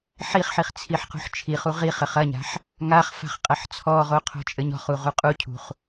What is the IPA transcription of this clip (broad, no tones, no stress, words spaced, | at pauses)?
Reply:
ħiχħiχ t͡sʰiħqṳħt͡ʃʰiχu ʁiχɘχ ɐɲa̤ħ | ŋaχ fa̤χqʼɐħt͡sʰɔʁo qʰo̤t͡ʃʼɘɲɔ̤χu ʁuqʼucʰṳχ